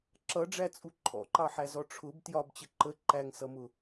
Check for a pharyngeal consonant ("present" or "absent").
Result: present